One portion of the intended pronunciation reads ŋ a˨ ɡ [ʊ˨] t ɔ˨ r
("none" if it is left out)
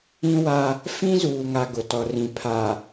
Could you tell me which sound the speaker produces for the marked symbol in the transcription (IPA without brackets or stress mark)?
ʊ˨